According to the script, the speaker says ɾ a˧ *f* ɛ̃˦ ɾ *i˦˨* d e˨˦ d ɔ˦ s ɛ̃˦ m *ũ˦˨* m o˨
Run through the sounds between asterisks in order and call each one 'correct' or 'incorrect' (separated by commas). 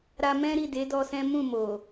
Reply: incorrect, correct, correct